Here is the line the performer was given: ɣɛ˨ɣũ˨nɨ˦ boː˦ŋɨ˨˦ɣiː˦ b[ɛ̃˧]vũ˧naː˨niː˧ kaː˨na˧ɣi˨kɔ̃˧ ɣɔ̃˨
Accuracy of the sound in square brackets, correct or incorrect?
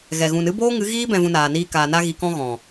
correct